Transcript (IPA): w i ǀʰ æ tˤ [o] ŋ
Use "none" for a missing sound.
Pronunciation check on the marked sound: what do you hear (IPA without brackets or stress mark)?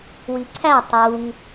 u